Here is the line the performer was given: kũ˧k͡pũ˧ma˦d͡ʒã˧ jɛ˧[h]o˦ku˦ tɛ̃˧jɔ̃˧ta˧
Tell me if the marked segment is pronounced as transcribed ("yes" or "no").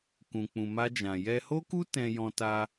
yes